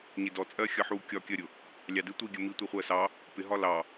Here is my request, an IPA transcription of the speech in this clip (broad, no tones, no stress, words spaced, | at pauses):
ɲɪdɔ t͡sʼɜxʲʌħu kʲɒkʲɜɾʲʊ | lʲɑdɪ tʷiɡʲə mitʷi χʷɜsɑ | pɪɦɒ lɑ